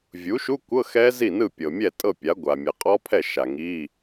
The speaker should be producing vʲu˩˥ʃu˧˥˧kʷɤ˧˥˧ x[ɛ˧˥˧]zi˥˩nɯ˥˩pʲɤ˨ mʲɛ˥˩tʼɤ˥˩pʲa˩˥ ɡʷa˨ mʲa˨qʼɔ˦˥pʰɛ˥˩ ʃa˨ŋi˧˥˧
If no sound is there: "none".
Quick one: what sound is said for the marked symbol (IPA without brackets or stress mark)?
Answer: ɛ˦˥